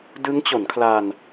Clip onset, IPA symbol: d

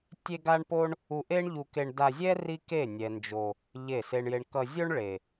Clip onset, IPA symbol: tʲ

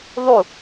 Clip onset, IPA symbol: ðˤ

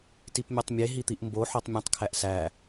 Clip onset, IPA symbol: t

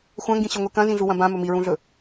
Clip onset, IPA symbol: xʷ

